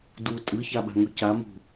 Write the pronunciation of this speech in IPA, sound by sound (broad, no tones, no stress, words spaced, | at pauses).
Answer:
du tʼɯçaɓa̤ŋu camṳ